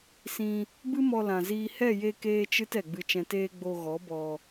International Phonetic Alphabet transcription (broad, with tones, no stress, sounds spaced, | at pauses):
s ĩ˧ | b ɨ˦ m ɔ˧ l ã˨ z iː˧ h ɛ˦˨ j e˧ k eː˦ t͡ʃ ɨ˦ t ɛ˨ ɡ͡b ɨ˧ t͡ʃ ɛ̃˧ t eː˦ ɡ͡b o˧ ɣ ɔ˨˦ b ɔ˧